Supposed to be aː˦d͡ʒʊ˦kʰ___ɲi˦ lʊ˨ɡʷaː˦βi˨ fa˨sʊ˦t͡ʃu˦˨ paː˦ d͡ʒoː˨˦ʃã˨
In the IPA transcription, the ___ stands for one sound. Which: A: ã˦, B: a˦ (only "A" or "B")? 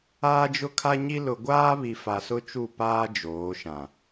B